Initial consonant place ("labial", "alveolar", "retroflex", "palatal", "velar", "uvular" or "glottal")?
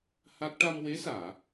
glottal